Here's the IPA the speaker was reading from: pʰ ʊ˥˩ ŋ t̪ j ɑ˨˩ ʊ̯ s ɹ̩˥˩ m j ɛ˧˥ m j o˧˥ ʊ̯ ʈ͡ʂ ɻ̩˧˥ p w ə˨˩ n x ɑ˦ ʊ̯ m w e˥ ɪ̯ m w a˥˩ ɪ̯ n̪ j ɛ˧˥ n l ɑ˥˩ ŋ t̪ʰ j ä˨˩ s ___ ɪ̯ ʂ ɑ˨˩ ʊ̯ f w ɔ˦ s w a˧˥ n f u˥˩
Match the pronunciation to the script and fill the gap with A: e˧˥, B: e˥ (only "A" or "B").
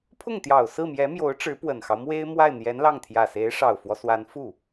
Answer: A